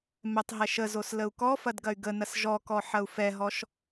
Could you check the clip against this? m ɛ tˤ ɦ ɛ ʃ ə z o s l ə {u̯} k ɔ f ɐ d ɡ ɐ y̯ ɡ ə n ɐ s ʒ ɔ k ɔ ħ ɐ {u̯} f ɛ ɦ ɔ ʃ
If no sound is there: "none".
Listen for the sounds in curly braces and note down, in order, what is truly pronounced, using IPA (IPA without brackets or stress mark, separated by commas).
u̯, u̯